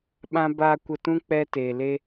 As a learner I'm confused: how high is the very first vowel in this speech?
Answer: low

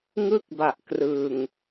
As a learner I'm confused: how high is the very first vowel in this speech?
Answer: high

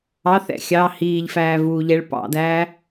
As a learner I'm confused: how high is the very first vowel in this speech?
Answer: low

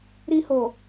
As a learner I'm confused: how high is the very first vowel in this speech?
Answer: high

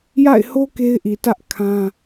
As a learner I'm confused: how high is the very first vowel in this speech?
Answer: low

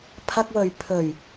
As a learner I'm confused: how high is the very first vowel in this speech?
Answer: low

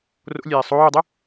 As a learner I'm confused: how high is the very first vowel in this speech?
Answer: mid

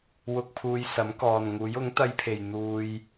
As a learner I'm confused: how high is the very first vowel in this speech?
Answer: high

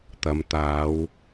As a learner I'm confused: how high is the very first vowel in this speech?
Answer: low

